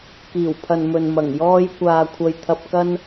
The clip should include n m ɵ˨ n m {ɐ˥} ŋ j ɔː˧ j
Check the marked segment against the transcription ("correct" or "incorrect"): incorrect